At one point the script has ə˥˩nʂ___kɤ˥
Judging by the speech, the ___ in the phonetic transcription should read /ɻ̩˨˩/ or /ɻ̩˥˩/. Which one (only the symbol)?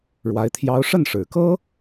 ɻ̩˨˩